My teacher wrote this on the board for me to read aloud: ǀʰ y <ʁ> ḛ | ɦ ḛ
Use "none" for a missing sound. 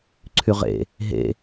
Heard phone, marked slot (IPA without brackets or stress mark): ʁ